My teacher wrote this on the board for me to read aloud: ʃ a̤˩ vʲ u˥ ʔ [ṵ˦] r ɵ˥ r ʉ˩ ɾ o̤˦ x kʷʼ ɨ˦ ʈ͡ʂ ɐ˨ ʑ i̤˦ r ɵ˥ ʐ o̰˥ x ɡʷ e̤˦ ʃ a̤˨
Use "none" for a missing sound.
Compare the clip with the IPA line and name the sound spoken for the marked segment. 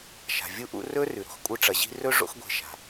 ṵ˦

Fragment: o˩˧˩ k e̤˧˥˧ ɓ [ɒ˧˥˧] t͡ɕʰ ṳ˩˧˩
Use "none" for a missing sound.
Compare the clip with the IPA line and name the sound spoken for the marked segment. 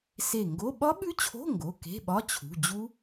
ɒ˧˥˧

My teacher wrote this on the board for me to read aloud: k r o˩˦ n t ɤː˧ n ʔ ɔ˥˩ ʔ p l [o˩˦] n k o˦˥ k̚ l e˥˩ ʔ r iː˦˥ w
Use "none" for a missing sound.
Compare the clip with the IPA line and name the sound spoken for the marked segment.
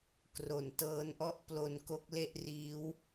o˧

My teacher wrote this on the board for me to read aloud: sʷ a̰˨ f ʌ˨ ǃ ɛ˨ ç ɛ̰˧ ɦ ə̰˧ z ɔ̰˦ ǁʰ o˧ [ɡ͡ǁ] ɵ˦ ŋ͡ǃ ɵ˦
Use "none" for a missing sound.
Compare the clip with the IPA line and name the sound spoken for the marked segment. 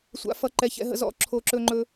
ǁ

